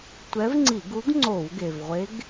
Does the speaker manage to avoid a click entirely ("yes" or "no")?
no